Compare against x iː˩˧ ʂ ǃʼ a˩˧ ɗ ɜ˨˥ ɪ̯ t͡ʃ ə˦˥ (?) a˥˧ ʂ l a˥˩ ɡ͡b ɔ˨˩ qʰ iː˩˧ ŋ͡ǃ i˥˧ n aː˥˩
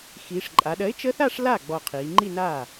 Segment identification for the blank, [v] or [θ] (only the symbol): θ